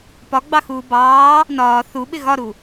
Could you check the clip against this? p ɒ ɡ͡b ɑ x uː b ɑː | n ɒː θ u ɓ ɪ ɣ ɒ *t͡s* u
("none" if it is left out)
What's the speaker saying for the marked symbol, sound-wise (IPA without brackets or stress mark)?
ɾ